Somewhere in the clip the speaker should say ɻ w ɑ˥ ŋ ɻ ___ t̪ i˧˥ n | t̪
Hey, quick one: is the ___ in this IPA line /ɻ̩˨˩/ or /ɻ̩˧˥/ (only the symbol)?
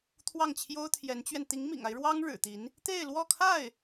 ɻ̩˨˩